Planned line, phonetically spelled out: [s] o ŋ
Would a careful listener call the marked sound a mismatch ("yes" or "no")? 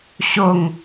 yes